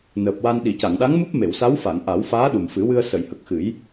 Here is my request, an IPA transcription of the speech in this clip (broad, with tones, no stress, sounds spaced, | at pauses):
n əː˨˩ p̚ w a˧ n ɗ i˨˩˨ c a˨˩˨ ŋ ɗ a˧˥ ŋ m u˦˥ p̚ m e˨˩˨ w s a˧˥ w f a˨˩˨ ŋ ʔ a˨˩˦ w f aː˧˥ ɗ u˨˩ m f ɨ˨˩˦ w ɨ˧ ə̯ s ə˨˩˨ j h ə˨˩ k̚ x ɨ˨˩˦ j